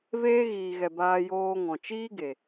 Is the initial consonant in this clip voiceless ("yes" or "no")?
no